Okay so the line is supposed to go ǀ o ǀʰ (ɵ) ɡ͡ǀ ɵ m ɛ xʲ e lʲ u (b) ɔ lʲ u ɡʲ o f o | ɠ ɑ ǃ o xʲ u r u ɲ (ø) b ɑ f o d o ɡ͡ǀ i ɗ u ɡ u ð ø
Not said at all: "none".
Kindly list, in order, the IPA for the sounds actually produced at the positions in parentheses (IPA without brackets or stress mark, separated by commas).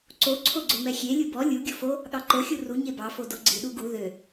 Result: o, b, e